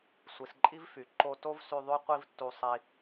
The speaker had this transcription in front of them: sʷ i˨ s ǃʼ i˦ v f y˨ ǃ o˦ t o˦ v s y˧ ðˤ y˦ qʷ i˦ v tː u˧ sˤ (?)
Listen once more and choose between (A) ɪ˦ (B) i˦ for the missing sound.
B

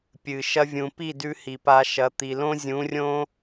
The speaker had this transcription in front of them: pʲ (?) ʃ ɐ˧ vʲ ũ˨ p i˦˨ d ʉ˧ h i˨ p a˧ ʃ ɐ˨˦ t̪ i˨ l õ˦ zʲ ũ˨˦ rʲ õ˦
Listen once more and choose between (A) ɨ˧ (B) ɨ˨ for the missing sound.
B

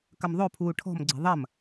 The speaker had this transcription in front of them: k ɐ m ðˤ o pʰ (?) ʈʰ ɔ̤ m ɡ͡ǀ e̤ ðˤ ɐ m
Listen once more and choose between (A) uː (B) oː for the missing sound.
A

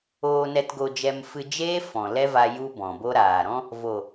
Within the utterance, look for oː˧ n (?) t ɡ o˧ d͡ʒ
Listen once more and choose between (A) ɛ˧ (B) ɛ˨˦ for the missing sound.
A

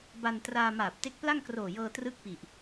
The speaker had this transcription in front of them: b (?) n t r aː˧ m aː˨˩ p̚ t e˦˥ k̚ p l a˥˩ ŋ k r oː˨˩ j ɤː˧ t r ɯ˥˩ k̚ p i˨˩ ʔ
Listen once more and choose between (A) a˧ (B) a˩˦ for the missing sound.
A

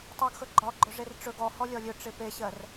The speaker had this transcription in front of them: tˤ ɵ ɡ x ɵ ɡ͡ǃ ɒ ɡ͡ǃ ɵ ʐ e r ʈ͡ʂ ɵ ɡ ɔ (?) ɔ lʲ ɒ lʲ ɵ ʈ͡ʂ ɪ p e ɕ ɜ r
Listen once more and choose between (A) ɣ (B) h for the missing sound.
B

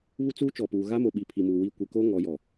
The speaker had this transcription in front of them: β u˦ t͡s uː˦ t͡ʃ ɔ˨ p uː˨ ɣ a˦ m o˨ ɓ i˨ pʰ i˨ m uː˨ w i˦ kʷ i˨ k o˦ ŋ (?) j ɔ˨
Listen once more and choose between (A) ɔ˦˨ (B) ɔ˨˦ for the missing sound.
B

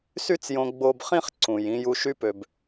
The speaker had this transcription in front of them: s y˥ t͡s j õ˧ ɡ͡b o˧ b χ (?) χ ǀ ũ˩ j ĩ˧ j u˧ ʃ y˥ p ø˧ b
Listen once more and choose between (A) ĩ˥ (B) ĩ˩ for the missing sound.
A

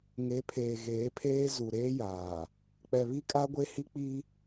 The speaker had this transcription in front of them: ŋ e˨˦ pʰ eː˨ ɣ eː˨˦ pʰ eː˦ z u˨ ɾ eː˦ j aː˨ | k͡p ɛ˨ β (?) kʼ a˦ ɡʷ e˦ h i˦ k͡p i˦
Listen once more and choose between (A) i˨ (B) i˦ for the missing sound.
B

